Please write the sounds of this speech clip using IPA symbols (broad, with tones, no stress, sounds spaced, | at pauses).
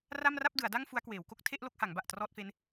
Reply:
r a˥˩ m r a˥˩ p̚ d ɯ˩˦ a̯ d a˥˩ ŋ f u˦˥ a̯ k w eː˩˦ w k o˦˥ k̚ tʰ e˥˩ ʔ l o˥˩ k̚ h a˩˦ ŋ b a˨˩ ʔ t r ɔː˥˩ t̚ f e˦˥ n